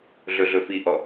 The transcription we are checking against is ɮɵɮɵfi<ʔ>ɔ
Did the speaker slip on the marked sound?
no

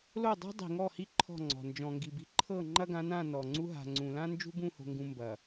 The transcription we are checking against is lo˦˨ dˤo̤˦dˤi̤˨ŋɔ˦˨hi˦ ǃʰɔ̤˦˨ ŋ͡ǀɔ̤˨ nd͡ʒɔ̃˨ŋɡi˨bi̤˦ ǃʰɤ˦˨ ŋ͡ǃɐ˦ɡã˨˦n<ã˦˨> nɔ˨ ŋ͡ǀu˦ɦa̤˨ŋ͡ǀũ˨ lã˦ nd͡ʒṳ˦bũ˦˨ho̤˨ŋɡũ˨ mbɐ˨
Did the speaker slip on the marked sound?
no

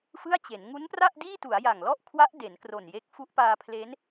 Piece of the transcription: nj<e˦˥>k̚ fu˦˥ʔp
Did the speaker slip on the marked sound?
no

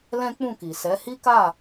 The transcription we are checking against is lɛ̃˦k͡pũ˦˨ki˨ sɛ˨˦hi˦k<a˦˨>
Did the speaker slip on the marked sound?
no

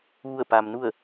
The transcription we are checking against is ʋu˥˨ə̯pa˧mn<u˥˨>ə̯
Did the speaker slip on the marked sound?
no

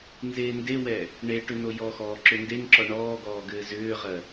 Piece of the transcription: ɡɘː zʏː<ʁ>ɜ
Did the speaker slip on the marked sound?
no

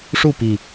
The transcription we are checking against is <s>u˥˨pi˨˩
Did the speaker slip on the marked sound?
yes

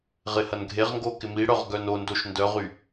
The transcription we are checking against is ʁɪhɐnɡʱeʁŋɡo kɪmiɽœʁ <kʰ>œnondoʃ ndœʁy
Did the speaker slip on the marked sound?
yes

